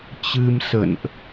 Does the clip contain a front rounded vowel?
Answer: no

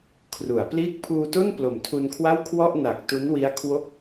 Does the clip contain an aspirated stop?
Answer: yes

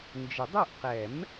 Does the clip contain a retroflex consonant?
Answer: no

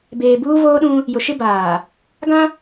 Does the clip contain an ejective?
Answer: no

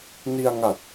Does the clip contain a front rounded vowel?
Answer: no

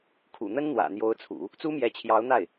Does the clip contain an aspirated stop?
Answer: yes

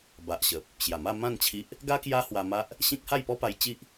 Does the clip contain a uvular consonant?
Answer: no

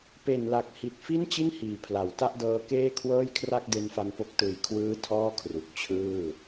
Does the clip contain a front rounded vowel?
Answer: no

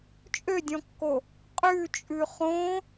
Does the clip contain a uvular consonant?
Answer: yes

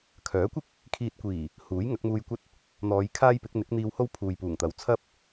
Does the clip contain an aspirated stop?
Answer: yes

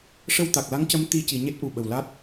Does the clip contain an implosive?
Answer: yes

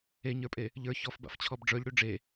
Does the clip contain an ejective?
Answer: yes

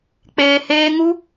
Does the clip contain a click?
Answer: no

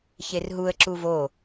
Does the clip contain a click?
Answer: yes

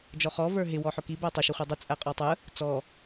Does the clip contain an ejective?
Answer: yes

